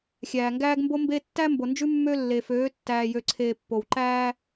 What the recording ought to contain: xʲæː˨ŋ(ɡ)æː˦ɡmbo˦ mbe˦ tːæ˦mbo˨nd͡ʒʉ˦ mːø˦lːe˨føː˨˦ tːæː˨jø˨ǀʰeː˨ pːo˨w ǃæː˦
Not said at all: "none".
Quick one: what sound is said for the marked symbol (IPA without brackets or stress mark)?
ɡ